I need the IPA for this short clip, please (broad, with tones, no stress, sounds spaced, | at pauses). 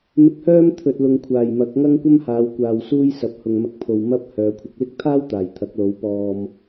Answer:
m ɪ˧ k̚ h œː˥ m t̪ʰ ɵ˨ t̚ l ʊ˨ ŋ kʷʰ aː˨˩ j m ɐ˨˥ k̚ ŋ ɐ˥ ŋ kʷ ɐ˥ m h aː˨˧ w kʷ aː˨ w s uː˥ j s ɐ˨˥ p̚ h ʊ˨ ŋ m ɐ˧ k̚ pʰ o˨ w m ɐ˥ p̚ h œː˨˧ kʷʰ ɪ˨ k̚ l ɪ˥ k̚ t̪ʰ aː˥ w t̪ aː˨˩ j t̪ʰ ɐ˨˥ k̚ l o˨˥ w p ɔː˧ m